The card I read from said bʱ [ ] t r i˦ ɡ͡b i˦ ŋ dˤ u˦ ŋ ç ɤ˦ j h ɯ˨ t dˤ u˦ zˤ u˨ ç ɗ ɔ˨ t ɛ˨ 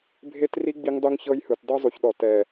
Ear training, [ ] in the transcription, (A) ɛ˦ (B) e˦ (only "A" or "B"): B